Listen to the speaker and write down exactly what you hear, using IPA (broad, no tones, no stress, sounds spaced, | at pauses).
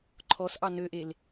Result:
ǃʰ ɔ s ʔ ɑ n ø ʔ e l